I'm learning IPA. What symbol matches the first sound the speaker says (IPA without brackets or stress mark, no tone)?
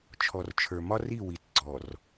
t͡ʃʰ